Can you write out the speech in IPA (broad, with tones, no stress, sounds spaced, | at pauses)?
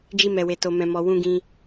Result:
d͡ʒ i˦ m ɛ˧ w e˧ t o˧ m ɛ̃˧ m ɔ˧ w ũ˧ ɡ ĩ˧